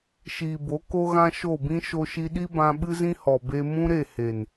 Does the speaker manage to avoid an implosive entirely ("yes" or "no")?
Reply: no